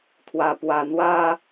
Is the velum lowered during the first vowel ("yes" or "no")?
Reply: no